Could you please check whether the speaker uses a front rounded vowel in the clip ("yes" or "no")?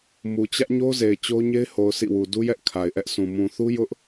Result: no